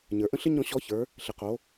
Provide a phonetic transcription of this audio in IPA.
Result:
ɲ ə˞˩ ʔ ə̃˥ ɬ ɪ˥ ɲ ɔ̃˧ ɕ ɔ˧˥ ç ə˞˩˧ | ɬ ɪ˩ q o˩˧

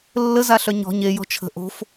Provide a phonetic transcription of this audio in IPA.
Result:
lː ə z a ɬ œ ɲ ɔ̤ ɲ e j ɔ̤ t͡ʃʰ ə̤ ʔ o̤ f

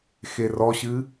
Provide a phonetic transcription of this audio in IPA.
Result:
x e r ɔ ɕ ɨ

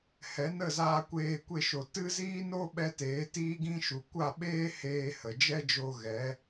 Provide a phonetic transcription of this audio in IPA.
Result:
h ɛ˨˦ n ə˦˨ z aː˧ kʷ eː˧ kʷ e˦˨ ʃ o˨ t ɨ˦ z iː˦ n o˦ ɓ ɛ˧ t eː˨˦ t iː˦ ɡ ĩ˦ ʃ u˨ kʷ a˦˨ ɓ eː˦ h eː˧ h ə˨ d͡ʒ ɛ˦ d͡ʒ o˧ ɣ ɛ˨˦

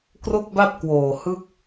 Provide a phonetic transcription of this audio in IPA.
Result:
k r o˥˩ k̚ b a˥˩ p̚ k w oː˨˩ h ɯ˥˩ k̚

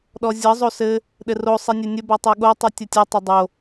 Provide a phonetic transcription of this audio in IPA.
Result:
ɗ ɔ zʲ ʌ zˤ o s ɘ | ɗ ɘ r o sˤ i nʲ ɘ nʲ ɘ b ɔ tˤ ɘ ɠ o tˤ u tʲ ə tʲ ɘ tˤ ɘ dˤ o

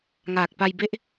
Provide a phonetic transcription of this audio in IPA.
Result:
ŋ aː˨˩ k̚ p a˧ j b e˦˥ ʔ

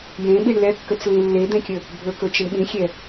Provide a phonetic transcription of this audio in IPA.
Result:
j ẽ ɓ i ɳ l ɛ kː ə t͡s l ĩ lː e d̪ ẽ kʲ ə | bʱ ɵ k ɵ t͡ʃ ə ɳ ɓ ĩ xʲ ɛ

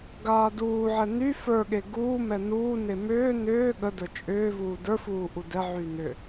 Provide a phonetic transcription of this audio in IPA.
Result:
ɡ aː d uː ʕ ɛ n y f ə˞ ɠ e ɡ uː m ɛ n uː n e m ʏː n ʏː ɠ ə d ə˞ t͡ʃʼ ʏː v uː d ə˞ f uː ʔ u d ɛ ʕ y n ʏ

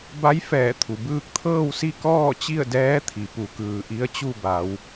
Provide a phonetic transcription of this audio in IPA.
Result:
b a˧˥ j f ɛː˧˩ t̪ʰ u˩ b ɯː˧ k̚ t̪ʰ ɤː˥˨ w s i˥˨ k ɔː˥˨ t͡ɕ i˥˨ ə̯ d ɛː˧˥ t̪ʰ i˩ p u˩˧ k ɯː˩ ʔ i˧˥ ə̯ t͡ɕ u˥˨ b a˩˧ w

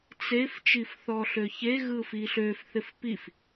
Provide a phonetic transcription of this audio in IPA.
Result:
t͡s e f t͡ʃ i f θ ɔ ɬ ø ç e ɣ ɯ f i ɬ ø f θ ɪ f p i f

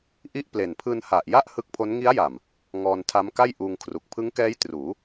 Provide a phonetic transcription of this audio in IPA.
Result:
ʔ i˥˩ ʔ p l e˨˩ n pʰ ɯː˧ n h a˨˩ ʔ j a˥˩ ʔ h ɯ˦˥ k̚ pʰ o˦˥ n ŋ i˦˥ a̯ j a˨˩ m | ŋ ɔː˧ n tʰ a˦˥ m k a˥˩ j ʔ uː˧ ŋ kʰ r u˨˩ k̚ pʰ ɯ˦˥ ŋ k ɛː˦˥ j t r uː˩˦

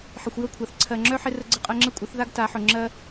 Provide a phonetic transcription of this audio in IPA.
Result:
ħ ɪ˨ xʷ j ə˦˨ kʷʰ a˨ θ ǀʰ ɜ˨ ŋ͡ǁ œ˦ ħ ɪ˦ r ə˦ ɡ͡ǀ ə˦ qʼ ɜ˦ ŋ͡ǁ ə˦ kʷʼ ɪ˨˦ θ ð a˦ ɡ t a˨˦ ħ ʊ˨ ŋ͡ǁ ɜ˦

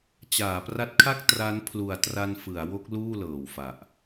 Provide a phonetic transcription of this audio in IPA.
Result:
t͡ɕ aː˩˦ p r a˦˥ t̚ kʰ a˥˩ k̚ t r a˦˥ n pʰ l u˨˩ a̯ t r a˧ n f ɯ˩˦ a̯ w o˦˥ k̚ l uː˥˩ l ɤː˨˩ w f a˨˩ ʔ

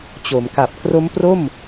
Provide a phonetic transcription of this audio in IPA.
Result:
t͡ɕ o˩˦ m k a˨˩ p̚ k r o˦˥ m p r o˥˩ m

